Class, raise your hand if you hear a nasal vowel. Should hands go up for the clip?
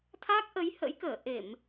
no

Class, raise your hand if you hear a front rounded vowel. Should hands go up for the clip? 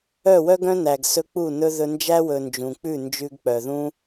yes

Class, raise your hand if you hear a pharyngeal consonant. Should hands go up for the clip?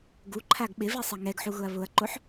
yes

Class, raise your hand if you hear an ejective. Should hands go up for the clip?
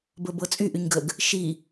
yes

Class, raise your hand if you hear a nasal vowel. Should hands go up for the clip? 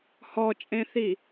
yes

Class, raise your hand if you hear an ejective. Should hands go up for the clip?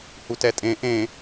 yes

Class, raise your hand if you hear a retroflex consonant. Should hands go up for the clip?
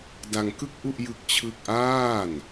no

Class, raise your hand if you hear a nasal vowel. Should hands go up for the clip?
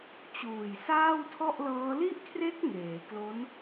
no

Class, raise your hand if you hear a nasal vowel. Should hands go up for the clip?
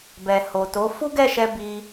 no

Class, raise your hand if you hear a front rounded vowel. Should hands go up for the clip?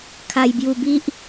no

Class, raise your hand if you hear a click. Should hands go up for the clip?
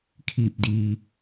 no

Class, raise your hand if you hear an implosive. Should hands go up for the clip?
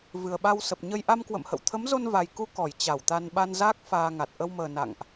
yes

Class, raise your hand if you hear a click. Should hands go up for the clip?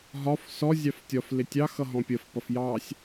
no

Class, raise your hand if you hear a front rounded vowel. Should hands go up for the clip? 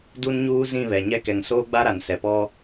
no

